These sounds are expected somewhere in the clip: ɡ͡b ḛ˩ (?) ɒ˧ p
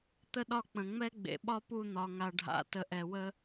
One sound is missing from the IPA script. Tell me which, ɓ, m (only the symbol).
ɓ